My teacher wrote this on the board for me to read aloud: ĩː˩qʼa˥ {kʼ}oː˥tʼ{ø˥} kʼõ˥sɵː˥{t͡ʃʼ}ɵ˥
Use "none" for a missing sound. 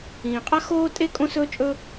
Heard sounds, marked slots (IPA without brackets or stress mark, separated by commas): x, e˥, t͡ʃʼ